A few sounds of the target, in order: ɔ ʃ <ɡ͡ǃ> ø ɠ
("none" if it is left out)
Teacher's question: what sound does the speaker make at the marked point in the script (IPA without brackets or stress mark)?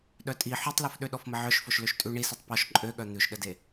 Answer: ǃʼ